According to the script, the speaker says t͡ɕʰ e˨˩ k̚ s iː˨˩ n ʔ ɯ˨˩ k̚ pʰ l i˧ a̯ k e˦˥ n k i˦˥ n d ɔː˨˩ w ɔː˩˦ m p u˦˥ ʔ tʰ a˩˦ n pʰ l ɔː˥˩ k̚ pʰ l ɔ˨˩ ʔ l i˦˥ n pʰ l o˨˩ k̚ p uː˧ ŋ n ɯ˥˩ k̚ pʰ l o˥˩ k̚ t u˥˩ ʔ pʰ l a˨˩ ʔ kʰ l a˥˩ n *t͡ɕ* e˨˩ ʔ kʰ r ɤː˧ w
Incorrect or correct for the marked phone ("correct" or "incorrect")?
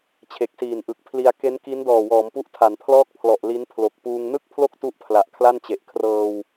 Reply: correct